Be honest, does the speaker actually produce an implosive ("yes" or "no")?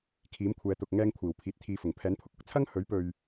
no